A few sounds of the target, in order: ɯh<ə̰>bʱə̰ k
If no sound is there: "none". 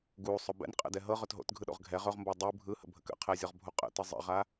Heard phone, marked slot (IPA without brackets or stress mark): ə̰